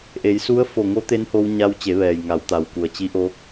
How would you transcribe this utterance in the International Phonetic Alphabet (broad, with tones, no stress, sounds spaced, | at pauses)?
ʔ e˩˧ j s u˧˥ ə̯ f o˧˩ ŋ o˧˥ t̪ e˧˥ n h o˧ w ɲ a˧ w t͡ɕ e˩˧ ʋ ɛː˩ j ŋ a˩˧ w t̪ a˩ w k u˩ ə̯ t͡ɕ i˧˥ ʔ oː˧˥ k̚